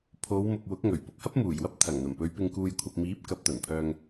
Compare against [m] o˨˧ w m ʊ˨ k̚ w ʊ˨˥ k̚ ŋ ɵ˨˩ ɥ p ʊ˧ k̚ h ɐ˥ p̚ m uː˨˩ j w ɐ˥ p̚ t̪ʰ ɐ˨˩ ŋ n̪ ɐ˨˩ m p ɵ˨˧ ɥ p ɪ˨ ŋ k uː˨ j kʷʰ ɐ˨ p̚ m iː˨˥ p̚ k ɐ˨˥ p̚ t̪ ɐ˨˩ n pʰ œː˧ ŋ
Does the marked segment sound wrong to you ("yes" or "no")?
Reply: yes